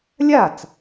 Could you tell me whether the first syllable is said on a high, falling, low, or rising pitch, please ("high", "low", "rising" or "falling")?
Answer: falling